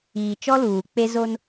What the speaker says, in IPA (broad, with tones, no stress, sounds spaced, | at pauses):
iː˨ t͡ʃ ɔ˦ l uː˨ k͡p e˦ z o˦ n